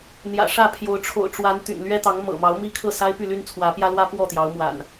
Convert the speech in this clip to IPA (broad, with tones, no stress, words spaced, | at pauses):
n̪jä̰˨˩ʂä˥˨pʰjo˨˦ʊ̯ ʈ͡ʂʰo̰˨˩ʊ̯ʈ͡ʂwa˨˦n t̪y̰˨˩n lɥɛ˦t̪ɑ˨˦ŋmɤ̰˨˩mɑ˨˦ʊ̯ mi˥˨kʰɤ˥˨sa˦ɪ̯ py˥˨ly˦nt͡sʰwä˨˦pjä˦ lwä˦ pwɔ˥˨t̪jɑ˨˦ʊ̯mwa̰˨˩n